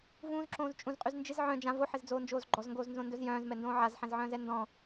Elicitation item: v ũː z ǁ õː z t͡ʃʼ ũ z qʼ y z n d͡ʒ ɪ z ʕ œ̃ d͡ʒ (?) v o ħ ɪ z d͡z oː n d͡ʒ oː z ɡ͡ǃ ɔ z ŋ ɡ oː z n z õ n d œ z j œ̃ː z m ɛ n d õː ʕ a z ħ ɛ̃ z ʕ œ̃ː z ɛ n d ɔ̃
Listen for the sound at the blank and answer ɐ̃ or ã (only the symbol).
ã